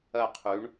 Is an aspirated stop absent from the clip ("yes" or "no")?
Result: no